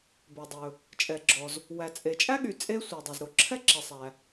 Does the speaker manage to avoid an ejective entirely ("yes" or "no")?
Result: no